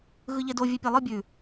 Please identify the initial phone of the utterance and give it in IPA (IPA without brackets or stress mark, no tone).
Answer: ɣ